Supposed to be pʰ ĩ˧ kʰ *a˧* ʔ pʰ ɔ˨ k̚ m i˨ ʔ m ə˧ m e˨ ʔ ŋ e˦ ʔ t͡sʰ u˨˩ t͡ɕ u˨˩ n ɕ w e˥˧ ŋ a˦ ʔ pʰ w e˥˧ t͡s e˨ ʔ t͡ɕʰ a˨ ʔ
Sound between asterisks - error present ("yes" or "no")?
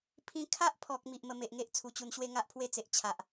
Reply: yes